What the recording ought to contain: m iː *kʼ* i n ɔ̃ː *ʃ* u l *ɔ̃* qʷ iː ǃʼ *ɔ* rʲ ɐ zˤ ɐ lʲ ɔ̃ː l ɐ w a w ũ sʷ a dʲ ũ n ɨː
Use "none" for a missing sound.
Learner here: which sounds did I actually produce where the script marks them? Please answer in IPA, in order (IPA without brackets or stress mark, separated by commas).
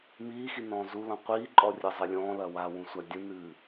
x, z, ɔ̃, ɔ